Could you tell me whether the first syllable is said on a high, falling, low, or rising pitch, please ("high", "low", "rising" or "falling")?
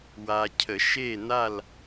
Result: low